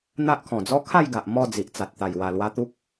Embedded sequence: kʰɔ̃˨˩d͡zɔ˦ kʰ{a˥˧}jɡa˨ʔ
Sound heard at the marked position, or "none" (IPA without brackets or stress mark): a˥˧